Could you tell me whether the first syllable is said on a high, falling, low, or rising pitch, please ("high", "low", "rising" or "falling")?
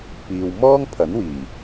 low